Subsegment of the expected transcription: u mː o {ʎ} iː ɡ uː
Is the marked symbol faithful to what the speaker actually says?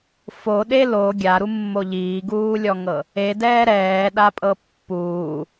yes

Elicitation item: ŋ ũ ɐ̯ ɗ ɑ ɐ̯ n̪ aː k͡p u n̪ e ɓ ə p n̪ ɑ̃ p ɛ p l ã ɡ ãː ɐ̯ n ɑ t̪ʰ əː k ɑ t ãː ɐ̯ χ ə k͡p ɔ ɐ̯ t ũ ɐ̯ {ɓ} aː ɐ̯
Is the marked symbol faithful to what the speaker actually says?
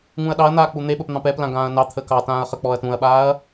yes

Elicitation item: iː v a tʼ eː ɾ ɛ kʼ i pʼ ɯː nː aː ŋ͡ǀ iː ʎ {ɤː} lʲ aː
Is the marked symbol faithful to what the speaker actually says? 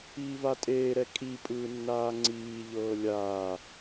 yes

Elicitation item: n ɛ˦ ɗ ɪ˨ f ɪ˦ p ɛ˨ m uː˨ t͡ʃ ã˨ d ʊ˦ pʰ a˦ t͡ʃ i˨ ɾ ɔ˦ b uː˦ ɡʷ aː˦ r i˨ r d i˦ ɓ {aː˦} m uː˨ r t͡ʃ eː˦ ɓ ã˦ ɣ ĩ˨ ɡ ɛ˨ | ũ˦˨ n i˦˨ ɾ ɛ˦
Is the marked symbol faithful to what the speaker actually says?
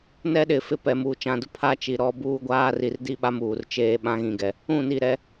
no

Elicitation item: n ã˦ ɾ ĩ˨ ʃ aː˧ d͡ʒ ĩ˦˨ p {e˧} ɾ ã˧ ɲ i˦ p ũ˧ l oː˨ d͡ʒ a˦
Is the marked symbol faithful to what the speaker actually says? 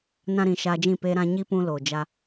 yes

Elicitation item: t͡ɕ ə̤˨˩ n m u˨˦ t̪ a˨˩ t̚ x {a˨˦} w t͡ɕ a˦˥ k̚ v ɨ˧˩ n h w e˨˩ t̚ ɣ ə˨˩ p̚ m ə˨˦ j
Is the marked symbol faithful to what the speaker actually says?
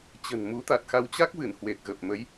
yes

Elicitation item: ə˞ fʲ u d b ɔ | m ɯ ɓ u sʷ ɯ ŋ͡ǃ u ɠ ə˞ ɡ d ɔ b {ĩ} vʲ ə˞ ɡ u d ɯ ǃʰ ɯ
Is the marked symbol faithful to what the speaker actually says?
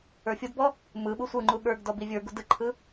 no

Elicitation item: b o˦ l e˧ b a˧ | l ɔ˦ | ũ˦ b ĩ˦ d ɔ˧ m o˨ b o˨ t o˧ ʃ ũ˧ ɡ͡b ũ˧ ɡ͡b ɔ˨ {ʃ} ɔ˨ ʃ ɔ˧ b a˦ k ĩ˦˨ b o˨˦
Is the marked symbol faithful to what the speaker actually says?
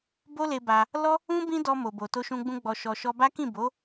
yes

